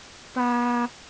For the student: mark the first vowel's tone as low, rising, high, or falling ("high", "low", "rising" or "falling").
high